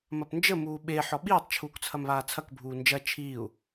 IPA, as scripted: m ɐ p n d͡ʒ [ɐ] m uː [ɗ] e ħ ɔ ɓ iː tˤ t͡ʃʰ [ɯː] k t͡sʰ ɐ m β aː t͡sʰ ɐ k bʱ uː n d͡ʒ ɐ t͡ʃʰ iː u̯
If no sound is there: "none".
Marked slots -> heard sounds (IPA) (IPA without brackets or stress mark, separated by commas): ə, ɓ, uː